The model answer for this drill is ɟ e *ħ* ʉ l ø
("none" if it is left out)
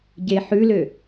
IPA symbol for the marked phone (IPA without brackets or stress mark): ħ